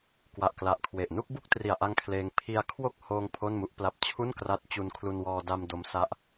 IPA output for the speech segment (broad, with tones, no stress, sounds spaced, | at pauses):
k w a˨˩ ʔ k l a˨˩ ʔ kʰ w e˨˩ ʔ n u˥˩ k̚ b u˥˩ k̚ t r i˨˩ a̯ ʔ a˧ ŋ kʰ l eː˧ ŋ pʰ i˧ a̯ kʰ w o˥˩ k̚ h oː˧ ŋ pʰ o˥˩ n m u˥˩ ʔ p l a˥˩ p̚ t͡ɕʰ u˥˩ n k r a˦˥ t̚ t͡ɕ u˧ n kʰ l u˧ n w ɔː˧ d a˧ m d o˦˥ m s a˦˥ ʔ